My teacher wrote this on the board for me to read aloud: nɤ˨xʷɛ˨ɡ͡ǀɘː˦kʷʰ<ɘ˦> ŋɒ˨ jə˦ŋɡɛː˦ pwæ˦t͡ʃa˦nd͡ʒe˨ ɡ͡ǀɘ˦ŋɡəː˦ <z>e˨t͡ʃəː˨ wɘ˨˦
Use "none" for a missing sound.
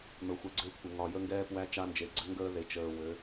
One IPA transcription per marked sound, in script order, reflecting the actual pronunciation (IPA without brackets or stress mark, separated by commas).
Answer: ɘ˨, ð